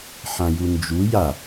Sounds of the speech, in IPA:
ħ ã j u n d͡ʒ u j a

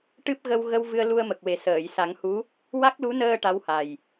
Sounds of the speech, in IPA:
ʈ ɨ˦˥ p̚ ɣ ə˧ w ɣ ə˧ w v ɨ˧ ə̯ l u˧ ə̯ m ə˨˩ k̚ w e˨˩ s əː˨˩˨ j s a˨˩˦ ŋ h u˧˥ | w a˦˥ k̚ l u˧˥ n əː˧ ʈ a˧˥ w h a˨˩ j

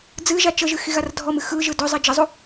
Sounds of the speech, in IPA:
d͡z ɨ ʒ a t͡ʃ ə ʒ ɨ x i ɣ a r dʱ ɔ m ɨ x ɯ ʒ ɯ d ɵ zˤ i d͡ʒ ə zˤ u

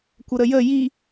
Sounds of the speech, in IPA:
kʷ ə ɾ ə j ə j i

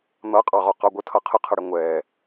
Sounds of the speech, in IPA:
n̪ ʌ qʼ ɑ ʁ ɒ q ɑ ɡʷ ə tʰ ʌ qʰ ə qʰ ʌ ɽ ɪ ŋʷ ɛ

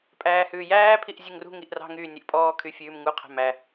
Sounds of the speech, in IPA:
pʼ æː h ʉː j æː pʰ i ʔ zʲ ʉ ŋ r ṳ ŋ i ʔ r ɑ̤ ŋ yː nʲ ø ʔ pʼ ɔː kʰ y fʲ ʉː m ŋ u qʰ æ̤ m æ

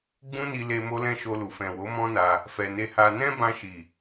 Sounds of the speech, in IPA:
ɡ͡b ũ˦ n i˧ l e˧ m o˦ l ɛ̃˦ ʃ o˧ l u˨ f ɛ̃˨ w o˨˦ m ɔ̃˦ n a˧ | f ɛ˨ n e˧ h a˧ n ɛ̃˦ b ã˧ ʃ i˨

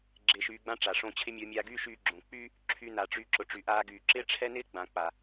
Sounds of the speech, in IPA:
ɡ͡ǁ ɪː˧ ʃ yː˧ ɡ͡b ã˦ ʈ͡ʂ a˨ ʂ õ˧ t͡ɕʰ ɪ˦ mʲ o˧ mʲ aː˧ ɡ yː˦ ʃ yː˧ ɡ͡ǁ õ˨ k͡p yː˦ | ǁʰ y˧ n a˨ ʈ͡ʂ y˧ ǁ ʊ˨ ʈ͡ʂ y˨ ʔ aː˧ ɡ yː˨ ǁ ɪː˦ ʈ͡ʂʰ ɛ˦ n ɪː˦ ɡ͡b ã˨ k͡p a˨

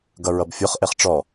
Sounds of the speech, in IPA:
ɡ ʌ ɹ ʌ b fʲ o χ ʔ e χ ʈ͡ʂ ɔ

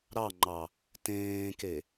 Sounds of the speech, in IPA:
ɾ ɑ ŋ͡ǃ ɑ | t ẽː k e

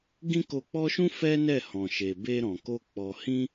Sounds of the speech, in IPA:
ɡ ĩ˦ k o˧ k͡p ɔ˦ ʃ ũ˦ f ɛ˦ n ɛ˦˨ h ɔ̃˨ ʃ e˨ b e˧ ɾ ɔ̃˨ k o˧ k͡p ɔ˨ h ĩ˧

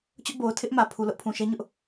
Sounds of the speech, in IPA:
t͡ɕ ʊ˦ ʔ b o˨ ʊ̯ tʰ ɪ˦ ʔ m ä˨ pʰ u˨ l ʊ˦ ʔ pʰ ũ˨ ʃ ɛ˦ ɲ ʊ˦ ʔ

